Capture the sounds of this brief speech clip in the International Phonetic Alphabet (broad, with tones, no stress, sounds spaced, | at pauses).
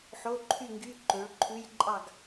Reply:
ħ o˧˥˧ ǃʰ y˥˨ ŋ ɡ y˧˥˧ ǃ ø˩˥ ɭ ǃʰ ʉ˧˥˧ j ǃʼ ɑ˥˨ ɡ